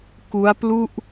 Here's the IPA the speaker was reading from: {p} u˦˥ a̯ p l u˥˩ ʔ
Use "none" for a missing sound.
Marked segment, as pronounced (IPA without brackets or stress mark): k